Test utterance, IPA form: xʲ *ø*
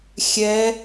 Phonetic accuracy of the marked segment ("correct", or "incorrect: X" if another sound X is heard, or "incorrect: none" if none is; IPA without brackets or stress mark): incorrect: ɛ